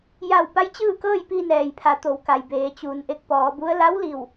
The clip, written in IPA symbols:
j a˧˩ w p a˧˥ j t͡ɕ ɯː˥˨ k ɤː˥˨ j p i˧ n ɛː˩ j pʰ a˩˧ t̪ o˩˧ w k a˩ j b eː˩˧ t͡ɕ uː˩˧ n ʔ e˧˩ k̚ p ɔː˩˧ b u˧˥ ə̯ l a˧˥ w l i˧˩ w

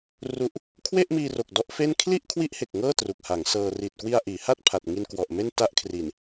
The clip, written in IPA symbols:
r u˥˩ ʔ | kʰ w e˥˩ ʔ m iː˧ r o˨˩ k̚ d ɔ˦˥ ʔ f e˥˩ n kʰ l i˥˩ ʔ kʰ w i˦˥ ʔ h e˨˩ k̚ ŋ ɤː˥˩ t r u˨˩ k̚ h a˩˦ ŋ s ɤː˧ r i˨˩ t̚ k w i˧ a̯ ʔ iː˩˦ h a˥˩ t̚ pʰ a˨˩ t̚ ŋ i˧ n k w ɔ˨˩ ʔ m e˥˩ n t a˦˥ ʔ kʰ r i˨˩ n

